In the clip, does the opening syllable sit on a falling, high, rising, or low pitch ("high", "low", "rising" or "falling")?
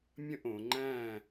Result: falling